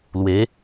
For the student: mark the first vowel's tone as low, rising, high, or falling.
rising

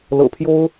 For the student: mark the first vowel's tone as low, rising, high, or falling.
low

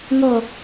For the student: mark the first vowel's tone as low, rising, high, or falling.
low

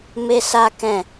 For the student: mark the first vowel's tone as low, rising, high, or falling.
high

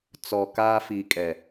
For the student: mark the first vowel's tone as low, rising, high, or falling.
low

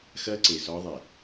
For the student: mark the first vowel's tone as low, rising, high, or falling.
high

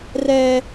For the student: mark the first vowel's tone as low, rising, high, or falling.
high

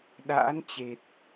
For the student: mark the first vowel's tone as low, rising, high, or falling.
rising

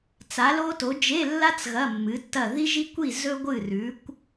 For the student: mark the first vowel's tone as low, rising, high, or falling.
rising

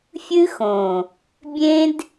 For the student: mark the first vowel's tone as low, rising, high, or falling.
high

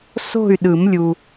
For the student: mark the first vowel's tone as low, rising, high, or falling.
falling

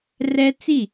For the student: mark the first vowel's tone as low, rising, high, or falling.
high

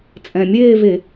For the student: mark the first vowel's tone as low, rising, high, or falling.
low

